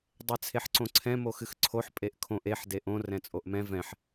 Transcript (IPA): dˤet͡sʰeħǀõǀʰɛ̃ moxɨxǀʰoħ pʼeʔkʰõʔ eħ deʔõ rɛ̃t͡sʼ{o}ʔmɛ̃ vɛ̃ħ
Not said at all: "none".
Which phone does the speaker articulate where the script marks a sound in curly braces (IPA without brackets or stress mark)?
o